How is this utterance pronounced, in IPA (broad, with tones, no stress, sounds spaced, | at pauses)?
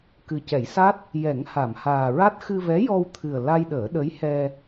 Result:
k ɨ˨˩ c ɛ˨˩˦ j s a˦˥ t̚ | j ɛ˨˩˦ ŋ h a˨˩˨ m h aː˨˩ ɹ a˦˥ t̚ x ɨ˧ v ɛ˧˥ j ɔ˧ w t̪ʰ ɨ˨˩ ə̯ l a˧ j ɗ əː˨˩˦ ɗ ə˧˥ j h ɛ˧